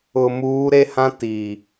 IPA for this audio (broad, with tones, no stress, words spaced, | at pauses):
ʊ˨ muː˨˦ɾe˦hã˦ ti˨